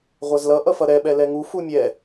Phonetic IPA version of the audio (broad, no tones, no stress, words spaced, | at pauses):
ʁʷazlʌ ʔʌfʌɾɛ ɓɛlɛŋu fumʲɛ